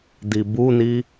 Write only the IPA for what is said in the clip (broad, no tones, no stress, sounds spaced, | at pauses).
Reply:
d i b u n i